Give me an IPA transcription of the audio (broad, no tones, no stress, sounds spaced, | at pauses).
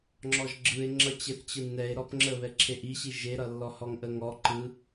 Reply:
ŋ͡ǁ ɔ ʒ ɡ͡ǁ ɯ e̯ ŋ͡ǁ ʌ t͡ɕ e θ t͡ɕ ɯ nː ɛ e̯ ɾ ɔ p ŋ͡ǁ ə β ɛ ǁʰ e ʔ i ɕ i ʒ e ɾ ʌ lː ɔ h ɔ ŋ ʔ ə ŋ ɔ ǃ ɯ